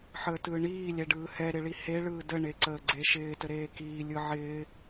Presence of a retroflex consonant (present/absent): present